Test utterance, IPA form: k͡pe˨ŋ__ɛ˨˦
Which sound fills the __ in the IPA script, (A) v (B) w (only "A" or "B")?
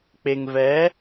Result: A